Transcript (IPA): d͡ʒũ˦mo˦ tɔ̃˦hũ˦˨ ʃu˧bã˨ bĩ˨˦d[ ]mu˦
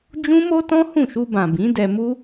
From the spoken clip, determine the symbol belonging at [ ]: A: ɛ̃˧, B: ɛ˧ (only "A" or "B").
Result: B